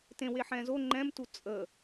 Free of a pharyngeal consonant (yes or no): no